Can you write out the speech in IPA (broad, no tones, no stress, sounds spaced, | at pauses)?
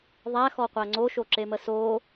ðˤ æ x ɔ qʷ æ ŋ͡ǀ o ʃ o ǁ e m ə s o